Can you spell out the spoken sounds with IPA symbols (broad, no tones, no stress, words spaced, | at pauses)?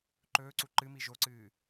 ǃɵːǀu ǃɨmi ʒoǀɨː